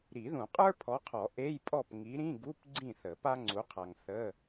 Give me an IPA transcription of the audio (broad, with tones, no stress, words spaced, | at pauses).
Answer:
ɾi˨˩˦ðũ˨˩˦ qʼə˞˥pʰɔ˨˦qʰɔ˨˩˦ ʔe˧˥˧jpʼɔ˥˨p ŋi˨˦ɾĩ˧˥˧ɡu˧˥˧p ɡ͡ǀĩ˥˨θə˨˩˦pa˥ ŋ͡ǀu˨˦qʰa˨ŋ θə˧˥˧